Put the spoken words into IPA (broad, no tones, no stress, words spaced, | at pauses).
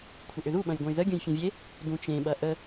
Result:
kʷʰəʔʏðu ɓɐ̃jɡʷɐ̃jðə ɡʲə̃jfʲɐ̃vʲe | dũt͡ʃẽ ɓɐʔə